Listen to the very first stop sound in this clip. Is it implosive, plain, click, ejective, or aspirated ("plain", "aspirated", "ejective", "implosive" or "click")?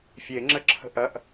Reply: click